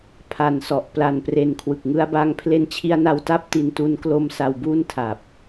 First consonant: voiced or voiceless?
voiceless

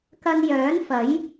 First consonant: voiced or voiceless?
voiceless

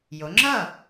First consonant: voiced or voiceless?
voiced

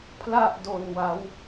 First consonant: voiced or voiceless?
voiceless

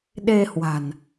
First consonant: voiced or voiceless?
voiced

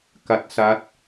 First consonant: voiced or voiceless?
voiceless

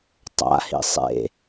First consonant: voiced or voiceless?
voiceless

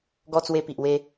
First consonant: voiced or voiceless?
voiced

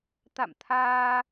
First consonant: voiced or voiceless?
voiceless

